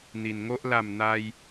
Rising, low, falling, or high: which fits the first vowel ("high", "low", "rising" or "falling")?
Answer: low